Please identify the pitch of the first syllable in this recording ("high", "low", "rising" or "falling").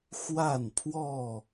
falling